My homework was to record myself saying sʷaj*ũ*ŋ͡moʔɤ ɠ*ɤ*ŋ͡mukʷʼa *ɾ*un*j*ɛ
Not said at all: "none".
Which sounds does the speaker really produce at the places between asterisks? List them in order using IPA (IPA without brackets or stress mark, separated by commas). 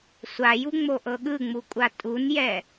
u, ɯ, tʼ, j